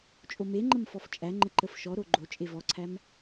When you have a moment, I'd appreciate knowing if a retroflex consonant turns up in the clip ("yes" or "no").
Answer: no